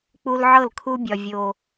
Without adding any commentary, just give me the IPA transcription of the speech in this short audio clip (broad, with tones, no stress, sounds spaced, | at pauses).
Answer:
k͡p u˦ l ʕ ɤ˦˨ l kʰ u˦ bʲ ɒ˦ vʲ o˦